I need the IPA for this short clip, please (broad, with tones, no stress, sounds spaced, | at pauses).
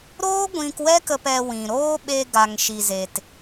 ɾ oː˦ ɡʷ ĩ˧ k w ɛ˦ k ə˧ p ɛ˧ w ĩ˨ ɾ oː˦ ɓ e˧ ɡ a˨ ŋ ʃ i˧ z e˧ t